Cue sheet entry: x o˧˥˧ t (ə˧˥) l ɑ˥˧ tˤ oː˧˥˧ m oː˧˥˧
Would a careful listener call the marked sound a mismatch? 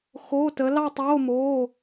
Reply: no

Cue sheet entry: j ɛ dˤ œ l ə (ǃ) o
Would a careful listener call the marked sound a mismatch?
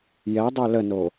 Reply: yes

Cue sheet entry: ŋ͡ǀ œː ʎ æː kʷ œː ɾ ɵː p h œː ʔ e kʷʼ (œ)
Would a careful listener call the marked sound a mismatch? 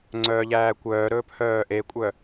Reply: no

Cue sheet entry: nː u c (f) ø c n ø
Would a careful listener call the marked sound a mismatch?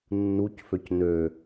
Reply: no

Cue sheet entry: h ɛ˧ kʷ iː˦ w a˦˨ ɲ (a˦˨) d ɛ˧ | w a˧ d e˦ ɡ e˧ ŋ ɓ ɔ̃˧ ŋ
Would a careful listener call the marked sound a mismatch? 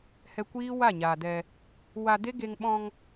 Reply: yes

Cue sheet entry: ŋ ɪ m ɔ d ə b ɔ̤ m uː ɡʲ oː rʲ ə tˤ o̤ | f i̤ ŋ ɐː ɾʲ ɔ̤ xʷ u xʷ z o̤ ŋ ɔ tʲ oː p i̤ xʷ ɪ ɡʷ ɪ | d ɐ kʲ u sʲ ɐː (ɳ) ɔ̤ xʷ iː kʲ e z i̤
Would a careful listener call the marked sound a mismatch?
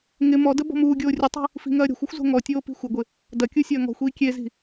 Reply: yes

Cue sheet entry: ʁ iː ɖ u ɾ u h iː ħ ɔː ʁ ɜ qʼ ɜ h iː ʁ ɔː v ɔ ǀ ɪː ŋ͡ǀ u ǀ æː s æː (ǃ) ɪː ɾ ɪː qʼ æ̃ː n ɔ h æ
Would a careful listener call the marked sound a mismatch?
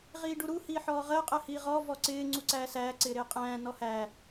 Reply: yes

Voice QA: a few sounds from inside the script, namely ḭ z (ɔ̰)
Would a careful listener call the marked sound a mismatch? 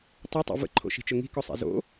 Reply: yes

